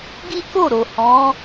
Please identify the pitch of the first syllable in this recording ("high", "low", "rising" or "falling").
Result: high